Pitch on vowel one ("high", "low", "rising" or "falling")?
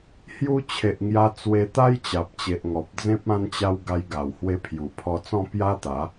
high